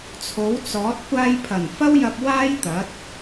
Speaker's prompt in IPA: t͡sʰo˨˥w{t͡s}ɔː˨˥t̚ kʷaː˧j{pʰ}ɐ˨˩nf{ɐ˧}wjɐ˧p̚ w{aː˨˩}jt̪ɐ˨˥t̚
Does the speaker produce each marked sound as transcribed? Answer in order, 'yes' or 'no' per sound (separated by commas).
yes, yes, no, no